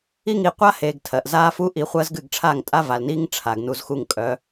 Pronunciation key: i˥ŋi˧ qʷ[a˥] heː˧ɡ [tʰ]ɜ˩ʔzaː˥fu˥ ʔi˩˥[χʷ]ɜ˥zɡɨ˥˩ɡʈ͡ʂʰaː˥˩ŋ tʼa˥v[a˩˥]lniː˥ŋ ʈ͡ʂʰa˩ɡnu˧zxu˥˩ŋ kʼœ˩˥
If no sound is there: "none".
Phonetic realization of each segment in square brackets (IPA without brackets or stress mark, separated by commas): a˥, tʰ, χʷ, a˩